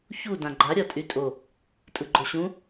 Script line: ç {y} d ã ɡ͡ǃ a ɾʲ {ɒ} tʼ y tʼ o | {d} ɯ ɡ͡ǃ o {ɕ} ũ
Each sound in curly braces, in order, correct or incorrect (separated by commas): incorrect, correct, incorrect, correct